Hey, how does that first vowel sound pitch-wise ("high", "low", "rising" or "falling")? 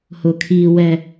low